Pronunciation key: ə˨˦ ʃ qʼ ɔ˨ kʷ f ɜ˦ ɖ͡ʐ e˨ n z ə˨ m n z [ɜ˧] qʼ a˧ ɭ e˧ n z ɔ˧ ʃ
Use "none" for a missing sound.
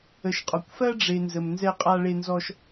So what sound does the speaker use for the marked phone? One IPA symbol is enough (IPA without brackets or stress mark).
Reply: ɛ˧